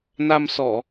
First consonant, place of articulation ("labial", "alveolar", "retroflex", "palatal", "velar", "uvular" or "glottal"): alveolar